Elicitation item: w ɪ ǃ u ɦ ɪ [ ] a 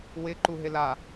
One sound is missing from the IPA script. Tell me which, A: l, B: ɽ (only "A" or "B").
A